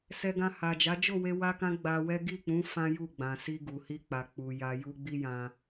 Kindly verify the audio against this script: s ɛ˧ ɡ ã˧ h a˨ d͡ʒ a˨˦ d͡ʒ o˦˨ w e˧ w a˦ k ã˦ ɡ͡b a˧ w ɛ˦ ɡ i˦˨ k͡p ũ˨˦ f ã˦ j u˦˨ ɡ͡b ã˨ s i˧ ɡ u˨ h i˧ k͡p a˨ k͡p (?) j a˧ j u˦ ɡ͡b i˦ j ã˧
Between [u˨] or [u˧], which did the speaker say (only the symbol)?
u˨